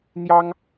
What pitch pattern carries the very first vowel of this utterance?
high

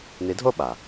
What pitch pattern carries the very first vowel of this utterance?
rising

